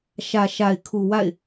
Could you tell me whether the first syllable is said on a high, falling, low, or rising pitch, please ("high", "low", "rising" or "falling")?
low